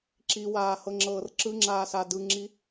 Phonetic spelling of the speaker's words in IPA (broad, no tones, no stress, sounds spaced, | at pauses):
ǁ i w aː h ɤ ŋ͡ǁ ɤː r ǁ ɯ ŋ͡ǁ aː s a d ɯ ŋ͡ǁ i